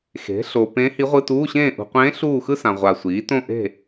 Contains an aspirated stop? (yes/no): no